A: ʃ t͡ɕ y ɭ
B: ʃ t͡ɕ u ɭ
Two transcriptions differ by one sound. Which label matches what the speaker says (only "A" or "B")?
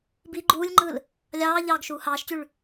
A